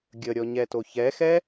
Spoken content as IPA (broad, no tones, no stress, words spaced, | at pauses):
ɡʲəɾʲɔɲɛto çɛxɛ